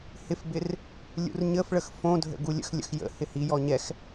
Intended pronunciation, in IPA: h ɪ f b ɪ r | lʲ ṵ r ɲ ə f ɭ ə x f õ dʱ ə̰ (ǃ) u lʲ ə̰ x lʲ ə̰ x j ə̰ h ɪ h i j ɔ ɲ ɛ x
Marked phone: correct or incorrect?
incorrect